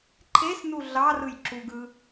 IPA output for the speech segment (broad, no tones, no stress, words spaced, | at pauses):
ǃʰesnu ɮɑrɯj ǁuɡɯ